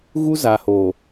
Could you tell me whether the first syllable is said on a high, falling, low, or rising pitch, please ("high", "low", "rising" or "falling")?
high